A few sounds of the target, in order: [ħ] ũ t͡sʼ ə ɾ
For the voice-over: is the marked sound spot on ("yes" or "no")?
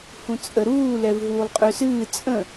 no